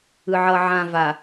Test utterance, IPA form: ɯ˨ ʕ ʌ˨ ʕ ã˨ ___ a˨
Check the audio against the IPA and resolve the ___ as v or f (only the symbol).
v